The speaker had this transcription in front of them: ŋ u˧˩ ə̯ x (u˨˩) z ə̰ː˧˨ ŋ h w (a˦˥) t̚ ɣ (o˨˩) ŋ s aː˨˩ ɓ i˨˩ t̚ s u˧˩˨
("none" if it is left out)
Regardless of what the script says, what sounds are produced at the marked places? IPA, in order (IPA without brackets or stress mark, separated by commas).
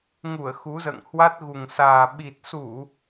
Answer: u˨˦, a˦˥, u˨˩